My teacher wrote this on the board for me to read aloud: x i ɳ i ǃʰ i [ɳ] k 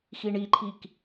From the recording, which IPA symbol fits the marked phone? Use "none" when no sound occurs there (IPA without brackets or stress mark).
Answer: none